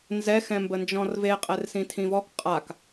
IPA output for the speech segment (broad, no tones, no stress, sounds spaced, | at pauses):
n z ɛ x ɛ̃ m b ə n d͡ʒ ɔ̃ r v e qʼ ɛ r s ĩ tʰ ĩ v ɔ k qʼ a k